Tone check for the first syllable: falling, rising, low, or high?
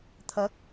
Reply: rising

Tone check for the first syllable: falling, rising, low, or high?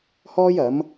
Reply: high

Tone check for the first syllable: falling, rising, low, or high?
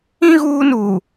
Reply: high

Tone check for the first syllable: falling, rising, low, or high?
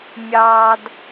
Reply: high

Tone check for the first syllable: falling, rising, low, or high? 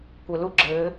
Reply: low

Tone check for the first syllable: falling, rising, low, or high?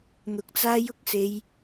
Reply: rising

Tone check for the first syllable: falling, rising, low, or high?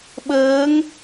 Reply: rising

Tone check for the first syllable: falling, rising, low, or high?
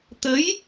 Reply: rising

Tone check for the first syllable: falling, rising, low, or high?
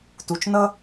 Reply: low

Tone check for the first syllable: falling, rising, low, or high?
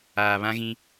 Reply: low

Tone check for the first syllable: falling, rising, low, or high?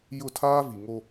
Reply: falling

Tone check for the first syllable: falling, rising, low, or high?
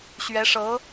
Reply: rising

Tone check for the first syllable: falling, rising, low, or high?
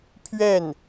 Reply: falling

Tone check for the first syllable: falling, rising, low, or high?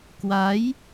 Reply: rising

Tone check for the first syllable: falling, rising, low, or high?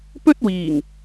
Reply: high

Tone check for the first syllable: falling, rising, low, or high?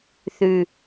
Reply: high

